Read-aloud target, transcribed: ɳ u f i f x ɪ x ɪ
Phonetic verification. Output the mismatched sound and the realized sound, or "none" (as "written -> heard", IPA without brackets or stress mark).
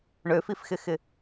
u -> ø